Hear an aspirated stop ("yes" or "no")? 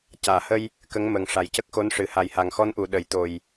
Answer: no